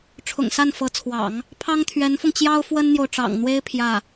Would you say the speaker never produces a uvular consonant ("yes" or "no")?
yes